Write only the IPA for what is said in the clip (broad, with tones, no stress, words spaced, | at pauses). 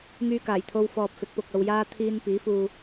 ŋyː˧kaː˨˩jt̪ʰo˧wfɔː˨p̚ fɪ˨˥k̚pʊ˨k̚ɐ˧wjaː˥ t̪ʰiː˥n piː˨˥fuː˧